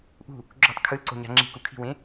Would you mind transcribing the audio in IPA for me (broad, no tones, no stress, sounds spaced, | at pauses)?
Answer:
ʔ ṳ | ɡ͡ǁ o̤ tˤ kʰ ɯ l ǀ o̤ ɲ a̤ ŋ͡ǁ i̤ k u kʰ i̤ w ẽ